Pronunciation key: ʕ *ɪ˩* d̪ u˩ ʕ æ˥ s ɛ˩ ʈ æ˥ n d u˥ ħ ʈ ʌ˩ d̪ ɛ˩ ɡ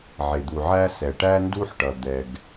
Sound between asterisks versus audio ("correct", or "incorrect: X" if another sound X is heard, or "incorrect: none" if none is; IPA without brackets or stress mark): correct